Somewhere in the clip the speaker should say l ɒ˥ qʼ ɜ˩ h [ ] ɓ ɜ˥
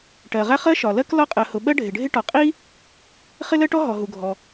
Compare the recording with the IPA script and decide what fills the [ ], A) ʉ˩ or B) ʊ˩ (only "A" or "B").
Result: B